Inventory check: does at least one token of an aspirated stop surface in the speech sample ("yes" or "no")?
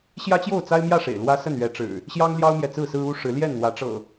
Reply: no